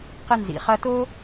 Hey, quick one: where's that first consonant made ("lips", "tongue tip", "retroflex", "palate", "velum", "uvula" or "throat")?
uvula